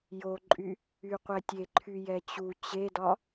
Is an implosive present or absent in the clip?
absent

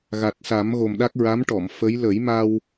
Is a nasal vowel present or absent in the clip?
absent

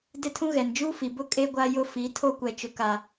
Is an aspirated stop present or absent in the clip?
present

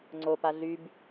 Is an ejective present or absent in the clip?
absent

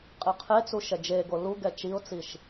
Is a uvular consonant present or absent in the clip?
present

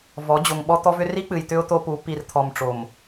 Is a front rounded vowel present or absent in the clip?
present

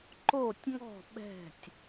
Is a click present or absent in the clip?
present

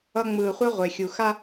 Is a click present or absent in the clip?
absent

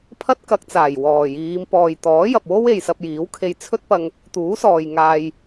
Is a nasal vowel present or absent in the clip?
absent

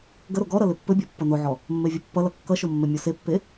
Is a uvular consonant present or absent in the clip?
absent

